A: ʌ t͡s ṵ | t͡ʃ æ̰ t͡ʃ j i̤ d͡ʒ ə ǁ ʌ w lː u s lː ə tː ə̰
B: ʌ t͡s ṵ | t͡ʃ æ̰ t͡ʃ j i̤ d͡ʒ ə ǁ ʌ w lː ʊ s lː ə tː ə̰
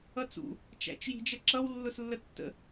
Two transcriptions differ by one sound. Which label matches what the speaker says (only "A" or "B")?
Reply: B